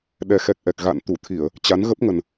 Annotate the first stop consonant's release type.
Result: implosive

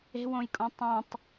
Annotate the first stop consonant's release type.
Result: ejective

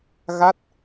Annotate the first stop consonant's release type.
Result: plain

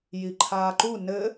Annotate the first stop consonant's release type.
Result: click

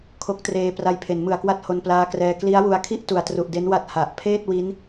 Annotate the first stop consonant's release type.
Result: aspirated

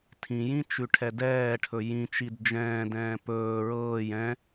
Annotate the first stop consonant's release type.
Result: aspirated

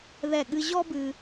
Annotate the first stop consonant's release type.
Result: implosive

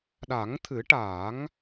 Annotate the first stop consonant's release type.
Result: implosive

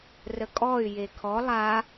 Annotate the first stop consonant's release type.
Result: ejective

